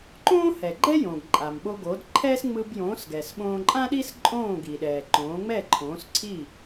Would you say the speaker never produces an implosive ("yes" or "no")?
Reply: no